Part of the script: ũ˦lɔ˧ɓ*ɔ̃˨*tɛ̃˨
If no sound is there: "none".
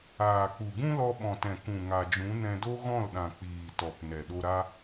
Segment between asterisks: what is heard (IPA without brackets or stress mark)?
ɔ̃˨